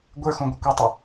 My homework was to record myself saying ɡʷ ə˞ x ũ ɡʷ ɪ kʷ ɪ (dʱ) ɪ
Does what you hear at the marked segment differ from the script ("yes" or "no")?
yes